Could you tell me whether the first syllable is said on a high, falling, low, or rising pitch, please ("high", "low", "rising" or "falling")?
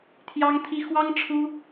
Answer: high